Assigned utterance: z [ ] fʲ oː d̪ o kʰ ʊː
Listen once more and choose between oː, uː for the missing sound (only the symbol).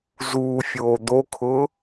uː